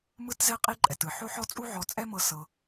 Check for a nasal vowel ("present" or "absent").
absent